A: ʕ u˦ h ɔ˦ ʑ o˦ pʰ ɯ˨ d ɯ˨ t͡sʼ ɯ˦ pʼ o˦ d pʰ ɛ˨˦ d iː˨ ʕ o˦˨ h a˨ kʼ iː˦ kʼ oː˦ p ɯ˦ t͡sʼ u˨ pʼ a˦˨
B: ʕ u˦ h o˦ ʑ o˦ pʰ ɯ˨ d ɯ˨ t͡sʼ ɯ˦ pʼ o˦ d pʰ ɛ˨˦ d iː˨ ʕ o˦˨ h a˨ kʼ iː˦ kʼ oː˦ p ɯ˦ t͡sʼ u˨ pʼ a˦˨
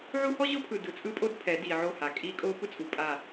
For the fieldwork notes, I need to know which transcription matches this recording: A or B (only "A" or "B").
A